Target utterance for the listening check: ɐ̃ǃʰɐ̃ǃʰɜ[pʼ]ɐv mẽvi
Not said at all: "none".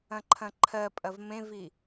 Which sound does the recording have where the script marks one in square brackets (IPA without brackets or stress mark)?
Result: pʼ